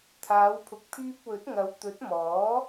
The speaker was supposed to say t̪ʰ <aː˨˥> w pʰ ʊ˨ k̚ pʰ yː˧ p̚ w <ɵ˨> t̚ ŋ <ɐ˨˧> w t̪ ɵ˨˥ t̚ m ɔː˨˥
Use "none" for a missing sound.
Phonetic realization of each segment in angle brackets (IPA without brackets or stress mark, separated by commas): aː˨˧, ɵ˨˥, ɐ˨˧